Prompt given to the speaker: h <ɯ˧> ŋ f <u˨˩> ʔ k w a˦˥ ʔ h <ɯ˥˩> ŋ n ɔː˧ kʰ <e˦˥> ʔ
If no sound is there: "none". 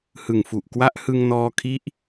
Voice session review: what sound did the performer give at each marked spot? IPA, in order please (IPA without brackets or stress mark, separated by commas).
ɯ˨˩, u˨˩, ɯ˧, i˦˥